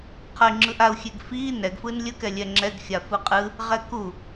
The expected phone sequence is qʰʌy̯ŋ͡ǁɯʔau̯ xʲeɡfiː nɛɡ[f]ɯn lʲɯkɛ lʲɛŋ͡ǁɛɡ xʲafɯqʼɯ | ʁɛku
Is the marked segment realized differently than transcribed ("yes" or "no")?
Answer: no